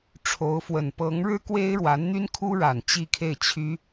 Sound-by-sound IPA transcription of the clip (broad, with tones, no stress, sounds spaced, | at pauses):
ʈ͡ʂʰ o˧˥ ʊ̯ f w ə˨˩ n p ɤ˧˥ ŋ ɻ ɻ̩˥ k w e˥ ɪ̯ ɻ w a˧˥ n n̪ y˥ n kʰ u˥ ɻ a˨˩ n t͡ɕ i˥˧ kʰ e˥˩ ɪ̯ t͡ɕʰ y˥